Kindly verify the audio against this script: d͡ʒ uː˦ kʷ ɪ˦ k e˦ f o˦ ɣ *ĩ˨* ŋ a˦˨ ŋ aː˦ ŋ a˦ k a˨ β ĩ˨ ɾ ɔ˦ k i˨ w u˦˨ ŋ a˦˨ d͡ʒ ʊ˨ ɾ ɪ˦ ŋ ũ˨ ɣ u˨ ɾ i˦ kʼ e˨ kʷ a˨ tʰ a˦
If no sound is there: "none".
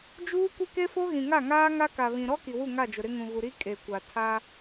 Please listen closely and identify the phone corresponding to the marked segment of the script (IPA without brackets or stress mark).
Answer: ĩ˨